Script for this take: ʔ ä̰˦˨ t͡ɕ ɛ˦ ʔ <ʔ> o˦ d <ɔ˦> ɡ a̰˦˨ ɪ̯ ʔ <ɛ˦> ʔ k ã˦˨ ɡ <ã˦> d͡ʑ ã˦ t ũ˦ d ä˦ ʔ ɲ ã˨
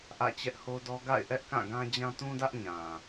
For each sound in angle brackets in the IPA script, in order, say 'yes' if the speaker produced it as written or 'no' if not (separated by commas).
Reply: no, yes, yes, yes